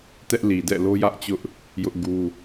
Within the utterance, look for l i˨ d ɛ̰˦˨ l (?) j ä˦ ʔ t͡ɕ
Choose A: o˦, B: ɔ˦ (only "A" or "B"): A